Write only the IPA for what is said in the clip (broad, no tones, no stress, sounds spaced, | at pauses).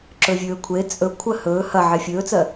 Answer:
ǁ ɵ vʲ ɵː kʷʰ e t͡sʼ ɵ kʷʰ ɜ h ɵː h ɐ ʕ e fʲ ɵː t͡s ɜ